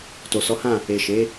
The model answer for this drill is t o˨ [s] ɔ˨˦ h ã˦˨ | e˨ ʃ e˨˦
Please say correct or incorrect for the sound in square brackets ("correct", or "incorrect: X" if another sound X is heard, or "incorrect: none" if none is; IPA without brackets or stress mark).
correct